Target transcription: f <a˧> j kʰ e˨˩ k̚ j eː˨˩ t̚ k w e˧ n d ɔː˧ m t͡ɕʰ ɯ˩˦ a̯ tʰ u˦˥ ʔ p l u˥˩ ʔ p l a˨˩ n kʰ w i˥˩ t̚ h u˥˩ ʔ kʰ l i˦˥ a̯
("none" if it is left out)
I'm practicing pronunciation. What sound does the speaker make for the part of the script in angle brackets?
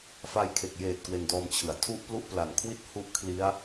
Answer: a˧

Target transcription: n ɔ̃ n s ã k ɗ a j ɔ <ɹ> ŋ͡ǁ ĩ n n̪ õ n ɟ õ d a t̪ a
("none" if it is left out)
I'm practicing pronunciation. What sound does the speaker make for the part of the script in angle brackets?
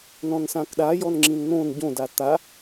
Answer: n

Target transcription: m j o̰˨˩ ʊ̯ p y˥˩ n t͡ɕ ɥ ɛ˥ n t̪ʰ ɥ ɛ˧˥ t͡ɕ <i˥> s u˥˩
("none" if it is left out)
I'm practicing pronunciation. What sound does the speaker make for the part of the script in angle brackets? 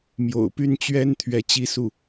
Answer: i˥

